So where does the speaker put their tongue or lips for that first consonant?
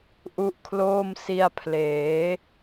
throat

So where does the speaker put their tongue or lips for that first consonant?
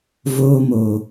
lips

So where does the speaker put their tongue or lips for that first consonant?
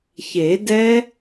palate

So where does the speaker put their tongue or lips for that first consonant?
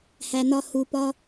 throat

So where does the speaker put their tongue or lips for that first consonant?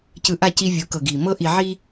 palate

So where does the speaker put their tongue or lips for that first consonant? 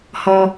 throat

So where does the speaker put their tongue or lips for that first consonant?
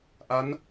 throat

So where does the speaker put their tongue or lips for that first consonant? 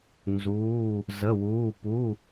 tongue tip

